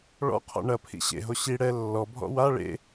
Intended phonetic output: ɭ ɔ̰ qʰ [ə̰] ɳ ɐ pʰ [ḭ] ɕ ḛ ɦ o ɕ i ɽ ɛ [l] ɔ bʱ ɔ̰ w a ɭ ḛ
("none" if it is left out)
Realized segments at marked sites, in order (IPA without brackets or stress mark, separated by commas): ɔ̰, ḭ, lː